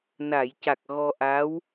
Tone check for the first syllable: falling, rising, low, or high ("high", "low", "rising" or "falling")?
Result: low